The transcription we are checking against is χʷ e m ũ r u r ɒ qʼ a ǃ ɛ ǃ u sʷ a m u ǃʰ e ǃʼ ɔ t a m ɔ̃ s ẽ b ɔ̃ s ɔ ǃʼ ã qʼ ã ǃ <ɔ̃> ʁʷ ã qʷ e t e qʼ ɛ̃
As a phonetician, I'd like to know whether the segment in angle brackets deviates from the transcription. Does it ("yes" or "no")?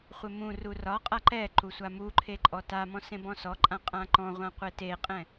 no